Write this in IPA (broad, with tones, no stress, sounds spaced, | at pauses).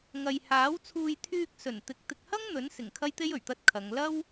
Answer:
ŋ ɐ˨ j h aː˨˥ w t͡sʰ uː˧ j t̪ʰ yː˧ k̚ s ɵ˨˩ n t̪ ɪ˨˥ k̚ t̪ ɪ˨ k̚ h ɐ˥ ŋ n̪ ɵ˨˥ n s ɪ˨˩ ŋ kʰ ɐ˥ j t̪ e˥ j ɵ˨˩ ɥ t̪ ɐ˧ t̚ kʰ ɐ˨˧ ŋ l ɐ˥ w